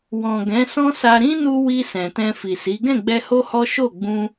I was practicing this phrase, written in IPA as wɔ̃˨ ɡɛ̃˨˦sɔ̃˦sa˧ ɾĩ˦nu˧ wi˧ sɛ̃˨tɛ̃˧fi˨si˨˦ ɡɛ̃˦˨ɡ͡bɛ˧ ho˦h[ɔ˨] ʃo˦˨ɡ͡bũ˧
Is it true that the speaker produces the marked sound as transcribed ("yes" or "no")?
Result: no